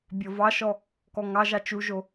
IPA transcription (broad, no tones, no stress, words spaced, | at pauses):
bʲɔvɑʃɔ | kɔŋɑʒɑ t͡ʃuʒo